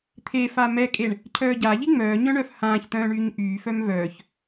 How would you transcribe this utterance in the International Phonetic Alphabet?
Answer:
t̪ʰ e f a m ɛ kʼ e ɳ | cʰ œː ɟ a ʎ i ŋ͡m œː ɲ œ̃ ɳ œ f h ãː ç t̪ œ̃ː ɳ yː ɲ ʔ yː f œ m v œː ç

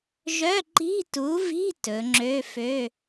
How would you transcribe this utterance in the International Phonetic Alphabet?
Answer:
ʒ œ˧˥˧ ǃ i̤˧˥˧ t u˨˥ v i̤˧˥˧ t ɵ˩˧ ŋ͡ǁ ø˧˥˧ f ø˧˥˧

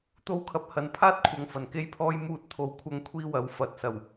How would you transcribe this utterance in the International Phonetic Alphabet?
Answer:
t̪ o˥ w kʰ ɐ˧ p̚ h ɐ˨ n pʰ aː˥ t̚ kʷʰ ɐ˨ ŋ f ɐ˨˩ n k e˥ j pʰ ɔː˥ j m uː˧ t̚ t̪ʰ o˨ w kʷʰ ɐ˧ ŋ kʷʰ iː˥ w ɐ˨˥ w f ɐ˨˥ t̚ s ɐ˨˩ w

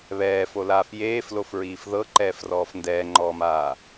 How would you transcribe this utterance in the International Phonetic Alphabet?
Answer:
β ɛː f o l aː f j eː f l o f ɹ iː f ð ɤ ǃ ɛː f r ɔː f n d ɛː ŋ͡ǃ ɔː m aː

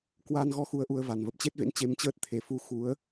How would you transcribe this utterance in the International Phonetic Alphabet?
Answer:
k w a˧ n ɣ ɔ˧ x u˧ ə̯ ʔ u˧ ə̯ v a˨˩ n v ə˨˩ p̚ t͡ɕ e˦˥ t̚ v ḛ˧˥ n t͡ɕ e˧ m t͡ɕ əː˦˥ t̚ t̪ʰ e˨˩ f u˧ x u˨˦ ə̯

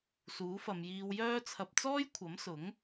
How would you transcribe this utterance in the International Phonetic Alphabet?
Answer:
s uː˨˥ f ɐ˨˧ m j iː˧ w j œː˥ t͡sʰ ɐ˧ p̚ t͡s ɔː˥ j kʷʰ ɐ˨˥ m s ʊ˨˥ ŋ

